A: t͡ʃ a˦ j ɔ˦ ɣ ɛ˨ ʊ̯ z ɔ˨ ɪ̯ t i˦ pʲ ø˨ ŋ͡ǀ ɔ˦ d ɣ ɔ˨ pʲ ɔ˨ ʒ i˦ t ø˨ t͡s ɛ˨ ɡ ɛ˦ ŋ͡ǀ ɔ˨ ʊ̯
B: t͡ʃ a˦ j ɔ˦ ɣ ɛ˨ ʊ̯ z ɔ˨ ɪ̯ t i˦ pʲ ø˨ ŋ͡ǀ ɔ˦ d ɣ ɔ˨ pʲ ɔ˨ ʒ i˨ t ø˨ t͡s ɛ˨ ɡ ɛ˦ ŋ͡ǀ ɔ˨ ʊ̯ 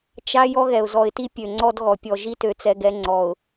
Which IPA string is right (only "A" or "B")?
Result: A